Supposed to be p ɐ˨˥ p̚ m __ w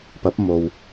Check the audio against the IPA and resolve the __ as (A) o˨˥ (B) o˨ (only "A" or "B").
B